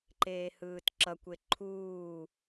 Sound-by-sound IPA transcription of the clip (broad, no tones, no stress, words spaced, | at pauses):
ǃeːhɯːtǁʌkʷe ǃʰuː